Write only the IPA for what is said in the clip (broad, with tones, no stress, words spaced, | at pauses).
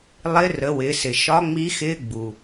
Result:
lˠɪ˧˥rə˩˧wɪ˩˧sɪ˩ ʃɒ˧˥ŋ͡mi˧˥xɪː˧˥ ɡ͡bu˩